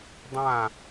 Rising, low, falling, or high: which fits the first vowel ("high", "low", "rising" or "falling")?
falling